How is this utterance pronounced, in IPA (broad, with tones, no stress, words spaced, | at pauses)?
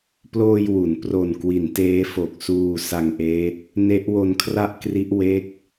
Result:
ploː˧j wu˩˦n pro˨˩n kwi˩˦nteː˦˥fo˨˩k̚ suː˧ sa˧ŋʔeː˦˥t̚ | ne˦˥ʔwo˧nkʰra˥˩ʔkri˦˥ʔ we˥˩k̚